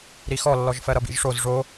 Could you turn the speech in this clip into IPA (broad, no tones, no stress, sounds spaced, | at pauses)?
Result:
ɾ i x ɔ lː ɔ ʒ f ɜ ɾ ʌ b ḭ ʒ ʂ o z ʐ o